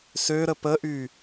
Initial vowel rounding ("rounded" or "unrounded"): rounded